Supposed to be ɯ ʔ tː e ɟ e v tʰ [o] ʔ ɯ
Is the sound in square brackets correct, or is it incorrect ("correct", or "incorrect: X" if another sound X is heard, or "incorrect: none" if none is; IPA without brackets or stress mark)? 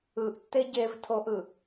correct